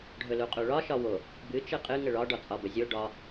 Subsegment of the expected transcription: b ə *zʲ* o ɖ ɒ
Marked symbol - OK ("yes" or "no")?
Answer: yes